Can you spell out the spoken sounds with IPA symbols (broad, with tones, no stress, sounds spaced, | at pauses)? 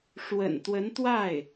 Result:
ʂ w ə̰˨˩ n t̪ w ə˧˥ n t̪ w a˥˩ ɪ̯